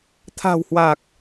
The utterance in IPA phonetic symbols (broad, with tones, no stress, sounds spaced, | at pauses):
t̪ʰ a̤˨˩ w h w a˨˩ k̚